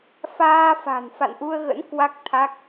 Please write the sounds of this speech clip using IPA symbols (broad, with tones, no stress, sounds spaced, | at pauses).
f aː˧ f a̤˨˩ n f a̰˧˨ n ʔ u˧ ə̯ ɣ ə̰˧˥ n k w a˦˥ k̚ t̪ʰ a˦˥ k̚